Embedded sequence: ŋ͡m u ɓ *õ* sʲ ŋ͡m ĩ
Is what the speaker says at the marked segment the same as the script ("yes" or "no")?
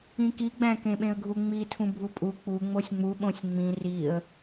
yes